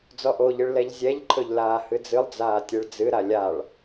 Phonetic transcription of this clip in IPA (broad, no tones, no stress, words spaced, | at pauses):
d͡zɔʔoʎɨɭ lɛʎzʲɛʎǃʰɵʎ laːhɨd͡zɨlˠd͡zaː tʲeɭd͡zɨɾa lʲaɭ